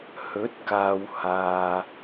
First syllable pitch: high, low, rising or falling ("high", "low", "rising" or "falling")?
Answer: rising